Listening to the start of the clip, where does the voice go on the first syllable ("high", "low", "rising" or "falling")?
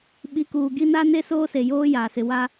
rising